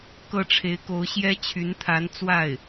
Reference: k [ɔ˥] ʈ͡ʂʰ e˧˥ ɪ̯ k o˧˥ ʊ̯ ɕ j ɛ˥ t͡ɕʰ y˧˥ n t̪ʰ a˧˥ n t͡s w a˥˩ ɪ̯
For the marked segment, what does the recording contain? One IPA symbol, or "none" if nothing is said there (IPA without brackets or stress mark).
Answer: ɤ˥